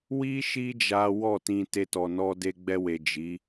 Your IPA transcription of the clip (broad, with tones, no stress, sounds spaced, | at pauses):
w i˦ ʃ i˦ d͡ʒ a˦ w ɔ˦˨ t ĩ˧ t e˧ t ɔ˨ n ɔ˧ d e˧ ɡ͡b ɛ˧ w e˨ d͡ʒ i˨˦